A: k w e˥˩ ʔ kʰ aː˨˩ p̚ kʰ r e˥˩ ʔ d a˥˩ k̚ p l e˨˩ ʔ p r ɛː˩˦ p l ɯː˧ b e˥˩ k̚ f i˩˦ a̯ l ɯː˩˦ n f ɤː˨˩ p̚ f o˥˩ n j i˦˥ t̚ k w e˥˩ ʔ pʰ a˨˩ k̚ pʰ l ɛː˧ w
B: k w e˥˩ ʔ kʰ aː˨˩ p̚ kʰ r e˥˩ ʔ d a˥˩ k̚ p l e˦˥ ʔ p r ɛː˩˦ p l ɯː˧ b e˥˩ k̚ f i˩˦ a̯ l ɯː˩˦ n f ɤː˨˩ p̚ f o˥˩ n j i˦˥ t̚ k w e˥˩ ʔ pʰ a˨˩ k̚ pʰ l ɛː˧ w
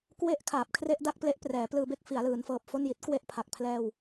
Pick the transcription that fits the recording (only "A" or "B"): B